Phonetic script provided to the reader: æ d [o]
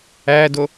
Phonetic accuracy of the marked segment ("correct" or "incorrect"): correct